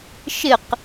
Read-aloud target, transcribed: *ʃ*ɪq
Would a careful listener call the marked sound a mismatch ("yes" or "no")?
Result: no